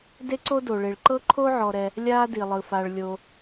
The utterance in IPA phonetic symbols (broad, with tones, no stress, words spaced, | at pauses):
de˥ǀo˥ do˩ɭe˩ɭ ǃɤ˥ǃʰo˥ ʕɔ˩ɾɛ˩ | lʲaː˥di˩lˠɯ˩ fa˩ɭlʲo˩